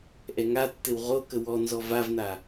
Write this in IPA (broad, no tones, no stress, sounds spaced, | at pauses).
ʔ ɛ ŋ a tː ɘ w ʁ o k ə w ɔ n z ɔ v a v n a